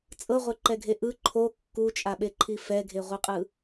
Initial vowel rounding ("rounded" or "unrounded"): unrounded